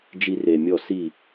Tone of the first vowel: high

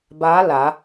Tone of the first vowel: rising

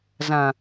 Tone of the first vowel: low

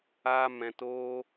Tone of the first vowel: high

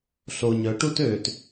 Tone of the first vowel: low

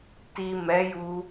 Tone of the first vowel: low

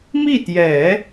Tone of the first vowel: falling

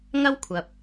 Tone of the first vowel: high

